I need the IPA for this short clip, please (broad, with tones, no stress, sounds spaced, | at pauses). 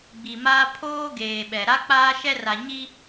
ɡ͡b i˨ m aː˦ pʰ oː˦ ɡ eː˨ ɓ ɛ˨ ɾ a˦ k͡p aː˦ ʃ ɛ˦ r a˨ ɲ i˦